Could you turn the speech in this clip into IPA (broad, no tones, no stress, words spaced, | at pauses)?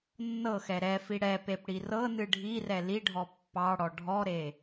nːɤxɛ ɾɛfi ɽɛpep ɽirɤnɨ ɖʱirɛ liɖʱɔ pːɑɽɔ ɖʱɔɾe